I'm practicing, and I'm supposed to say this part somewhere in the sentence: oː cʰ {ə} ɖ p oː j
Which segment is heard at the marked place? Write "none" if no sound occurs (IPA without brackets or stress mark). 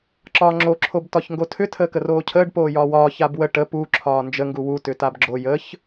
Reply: əː